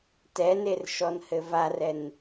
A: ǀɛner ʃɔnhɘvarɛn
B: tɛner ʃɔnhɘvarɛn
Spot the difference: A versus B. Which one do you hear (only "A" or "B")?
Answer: B